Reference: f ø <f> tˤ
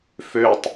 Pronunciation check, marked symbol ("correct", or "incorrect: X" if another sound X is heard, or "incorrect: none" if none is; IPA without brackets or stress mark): incorrect: none